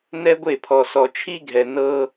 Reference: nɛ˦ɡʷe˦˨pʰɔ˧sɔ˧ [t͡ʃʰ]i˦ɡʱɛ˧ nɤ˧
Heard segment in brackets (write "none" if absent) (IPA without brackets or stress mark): t͡ʃʰ